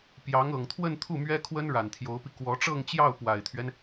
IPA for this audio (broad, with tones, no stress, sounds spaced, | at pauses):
p j ɑ˧˥ ŋ ɤ˨˩ ŋ t̪ʰ w ə˥˧ n t̪ʰ u˥˩ m ɥ ɛ˥ kʰ w ə˥ n ɻ a˨˩ n t̪ʰ j o˧˥ ʊ̯ p i˧ k w ɔ˧˥ ʈ͡ʂ ɤ˥˧ ŋ t͡ɕ j ɑ˥˩ ʊ̯ p w a˨˩ ɪ̯ t̪ʰ ɥ ɛ˦ n